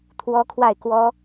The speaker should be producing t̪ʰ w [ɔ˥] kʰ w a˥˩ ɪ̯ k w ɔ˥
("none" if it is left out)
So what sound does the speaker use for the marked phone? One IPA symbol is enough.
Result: ɔ˥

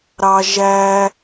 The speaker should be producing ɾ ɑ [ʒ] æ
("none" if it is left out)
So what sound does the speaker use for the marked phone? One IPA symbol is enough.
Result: ʒ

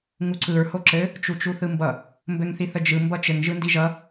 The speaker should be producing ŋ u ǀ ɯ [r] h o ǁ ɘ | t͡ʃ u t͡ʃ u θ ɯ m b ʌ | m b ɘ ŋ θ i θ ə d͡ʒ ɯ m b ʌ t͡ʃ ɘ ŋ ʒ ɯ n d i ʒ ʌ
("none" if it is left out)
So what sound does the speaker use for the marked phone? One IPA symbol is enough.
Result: ɹ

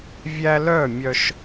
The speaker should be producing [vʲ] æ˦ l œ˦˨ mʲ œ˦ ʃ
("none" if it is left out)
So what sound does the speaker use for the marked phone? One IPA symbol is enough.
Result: vʲ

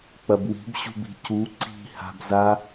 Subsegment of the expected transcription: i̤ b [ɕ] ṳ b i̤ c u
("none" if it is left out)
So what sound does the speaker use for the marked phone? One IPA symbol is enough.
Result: ɕ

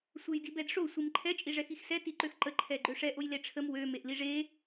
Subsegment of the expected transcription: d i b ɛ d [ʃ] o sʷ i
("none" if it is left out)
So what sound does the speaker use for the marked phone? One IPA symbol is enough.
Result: ʂ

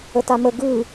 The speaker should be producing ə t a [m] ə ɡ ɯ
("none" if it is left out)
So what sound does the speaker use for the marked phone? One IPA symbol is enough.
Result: m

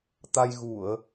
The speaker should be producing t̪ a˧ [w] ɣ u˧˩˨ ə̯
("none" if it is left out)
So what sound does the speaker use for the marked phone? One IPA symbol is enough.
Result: j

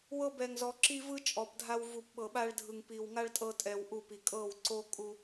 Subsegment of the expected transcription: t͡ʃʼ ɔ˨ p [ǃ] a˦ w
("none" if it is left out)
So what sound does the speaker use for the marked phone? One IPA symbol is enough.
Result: dʱ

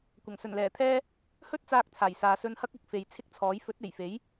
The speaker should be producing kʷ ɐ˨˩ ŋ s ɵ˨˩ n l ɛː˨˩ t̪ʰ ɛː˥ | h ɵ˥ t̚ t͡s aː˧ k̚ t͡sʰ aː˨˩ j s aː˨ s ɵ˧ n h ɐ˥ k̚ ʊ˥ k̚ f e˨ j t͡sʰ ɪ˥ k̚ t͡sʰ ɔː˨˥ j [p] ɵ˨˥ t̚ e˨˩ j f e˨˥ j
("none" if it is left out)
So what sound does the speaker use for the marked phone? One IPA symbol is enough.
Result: f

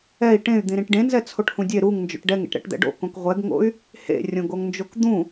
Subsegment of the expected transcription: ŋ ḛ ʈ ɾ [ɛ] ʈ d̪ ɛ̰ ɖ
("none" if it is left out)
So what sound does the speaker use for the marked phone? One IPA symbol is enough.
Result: ɛ̰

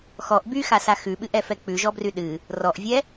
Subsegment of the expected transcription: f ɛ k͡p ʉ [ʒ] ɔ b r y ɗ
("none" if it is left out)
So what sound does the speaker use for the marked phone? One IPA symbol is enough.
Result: ʒ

